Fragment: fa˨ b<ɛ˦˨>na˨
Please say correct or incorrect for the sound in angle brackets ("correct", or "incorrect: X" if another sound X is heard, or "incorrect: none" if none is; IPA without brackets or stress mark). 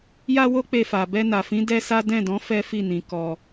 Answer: incorrect: ɛ˧